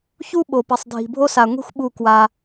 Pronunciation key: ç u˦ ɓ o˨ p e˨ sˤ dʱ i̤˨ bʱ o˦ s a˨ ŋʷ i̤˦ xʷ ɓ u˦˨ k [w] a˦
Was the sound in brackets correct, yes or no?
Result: yes